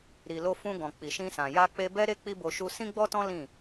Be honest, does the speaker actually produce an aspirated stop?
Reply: no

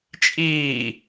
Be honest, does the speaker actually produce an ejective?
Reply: yes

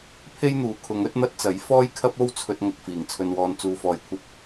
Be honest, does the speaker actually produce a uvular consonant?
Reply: no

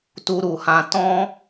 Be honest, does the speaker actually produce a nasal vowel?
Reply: yes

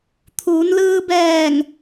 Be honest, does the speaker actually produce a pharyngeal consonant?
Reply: no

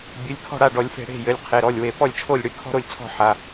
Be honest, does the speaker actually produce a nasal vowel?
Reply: no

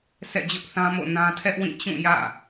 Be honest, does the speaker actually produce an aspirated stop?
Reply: yes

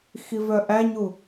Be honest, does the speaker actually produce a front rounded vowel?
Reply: yes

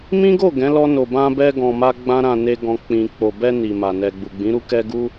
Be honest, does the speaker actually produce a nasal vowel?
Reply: yes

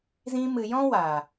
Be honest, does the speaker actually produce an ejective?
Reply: no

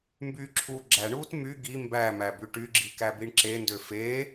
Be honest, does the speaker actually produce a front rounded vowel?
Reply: yes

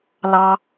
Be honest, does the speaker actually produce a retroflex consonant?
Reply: no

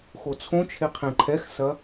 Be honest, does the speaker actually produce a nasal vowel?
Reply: yes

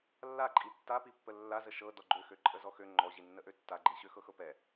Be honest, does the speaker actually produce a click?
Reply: yes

